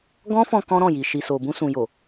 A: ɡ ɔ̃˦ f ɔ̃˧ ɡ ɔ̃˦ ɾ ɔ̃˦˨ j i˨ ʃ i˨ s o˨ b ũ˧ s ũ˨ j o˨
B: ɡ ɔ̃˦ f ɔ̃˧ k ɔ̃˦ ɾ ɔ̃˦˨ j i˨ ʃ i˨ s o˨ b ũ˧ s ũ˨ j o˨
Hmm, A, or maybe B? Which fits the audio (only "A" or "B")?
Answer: B